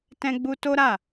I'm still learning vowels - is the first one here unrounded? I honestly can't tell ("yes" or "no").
yes